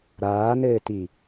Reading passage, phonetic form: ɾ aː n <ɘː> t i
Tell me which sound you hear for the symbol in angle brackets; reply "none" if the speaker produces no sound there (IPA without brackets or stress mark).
ɘː